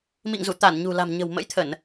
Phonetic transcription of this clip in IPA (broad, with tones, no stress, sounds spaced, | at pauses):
m ḭ˧˨ ŋ z u˧˩ t̪ a˧˩ n ɲ ṳ˨˩ l a̤˨˩ m ɲ ə̤˨˩ w m ə̰˧˥ j t̪ʰ ə˧˩˨ n